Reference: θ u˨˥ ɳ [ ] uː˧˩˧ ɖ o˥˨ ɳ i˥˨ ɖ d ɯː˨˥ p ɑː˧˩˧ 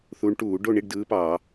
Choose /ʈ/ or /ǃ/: ʈ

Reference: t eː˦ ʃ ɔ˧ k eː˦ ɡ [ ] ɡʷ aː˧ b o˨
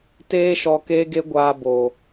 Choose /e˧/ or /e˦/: e˦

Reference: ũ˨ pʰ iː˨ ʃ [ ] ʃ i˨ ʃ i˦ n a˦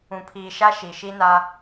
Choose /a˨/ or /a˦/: a˦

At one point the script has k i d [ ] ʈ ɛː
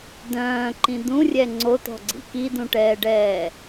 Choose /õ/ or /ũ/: ũ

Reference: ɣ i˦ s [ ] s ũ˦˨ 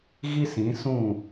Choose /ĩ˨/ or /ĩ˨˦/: ĩ˨˦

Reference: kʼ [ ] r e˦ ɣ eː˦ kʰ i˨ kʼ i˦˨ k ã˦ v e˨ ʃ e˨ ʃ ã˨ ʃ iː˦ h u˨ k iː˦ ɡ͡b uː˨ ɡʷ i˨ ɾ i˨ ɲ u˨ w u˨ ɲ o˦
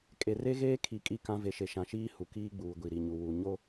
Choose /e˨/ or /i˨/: e˨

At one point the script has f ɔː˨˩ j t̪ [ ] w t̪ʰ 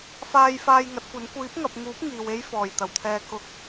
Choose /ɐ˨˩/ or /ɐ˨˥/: ɐ˨˩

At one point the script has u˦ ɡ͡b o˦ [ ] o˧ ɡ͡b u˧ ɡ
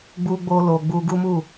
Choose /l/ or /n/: l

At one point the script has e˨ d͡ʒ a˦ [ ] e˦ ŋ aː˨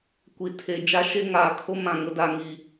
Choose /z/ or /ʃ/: ʃ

